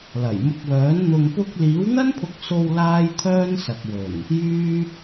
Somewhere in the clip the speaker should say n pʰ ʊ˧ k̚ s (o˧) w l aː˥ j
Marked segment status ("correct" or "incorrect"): correct